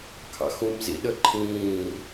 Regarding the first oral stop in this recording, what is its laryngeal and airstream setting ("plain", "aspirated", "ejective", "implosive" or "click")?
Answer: aspirated